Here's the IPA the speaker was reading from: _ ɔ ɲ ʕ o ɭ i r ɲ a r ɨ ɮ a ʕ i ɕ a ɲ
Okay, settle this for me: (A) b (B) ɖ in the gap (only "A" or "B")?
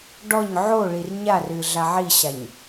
B